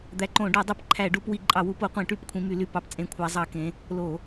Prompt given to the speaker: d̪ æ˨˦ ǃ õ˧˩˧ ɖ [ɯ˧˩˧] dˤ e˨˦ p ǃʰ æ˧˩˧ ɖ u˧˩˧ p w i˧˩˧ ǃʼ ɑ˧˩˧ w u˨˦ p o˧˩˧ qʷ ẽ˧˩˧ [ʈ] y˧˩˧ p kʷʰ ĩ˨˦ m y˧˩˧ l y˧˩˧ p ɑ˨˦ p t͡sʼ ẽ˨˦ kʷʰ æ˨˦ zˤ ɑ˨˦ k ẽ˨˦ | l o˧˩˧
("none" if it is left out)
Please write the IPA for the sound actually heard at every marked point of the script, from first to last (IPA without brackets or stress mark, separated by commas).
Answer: u˧˩˧, ʈ